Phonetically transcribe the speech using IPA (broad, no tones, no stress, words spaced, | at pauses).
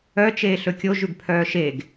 œt͡ʃeː ɬɵkʲo ʒʉɡpʰœːʃeɡ